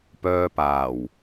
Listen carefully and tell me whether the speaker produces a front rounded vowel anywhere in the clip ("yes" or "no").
yes